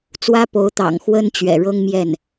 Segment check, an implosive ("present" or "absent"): absent